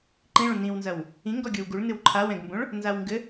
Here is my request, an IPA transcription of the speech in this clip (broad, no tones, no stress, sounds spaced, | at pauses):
ǃ ĩ ɭ ũ n ĩ w n z ɐ w | ĩ ŋ ɡ ɔ ɡʲ o w ɡ u ɭ n ɨ w ǃʰ a w ɛ̃ ɡ m b õ ɭ | n z a w ŋ ɡ ɘ